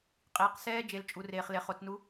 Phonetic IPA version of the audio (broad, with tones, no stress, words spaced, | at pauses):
qʼiː˩qsɛː˧ d͡ʒe˩lt͡ʃʼu˩reː˩χ le˩χo˩˧t͡snu˧˥